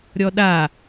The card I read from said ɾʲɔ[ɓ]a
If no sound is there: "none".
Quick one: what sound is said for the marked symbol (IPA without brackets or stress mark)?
ɗ